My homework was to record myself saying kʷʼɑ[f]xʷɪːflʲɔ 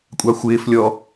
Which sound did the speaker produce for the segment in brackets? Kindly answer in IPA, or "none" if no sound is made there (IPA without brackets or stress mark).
none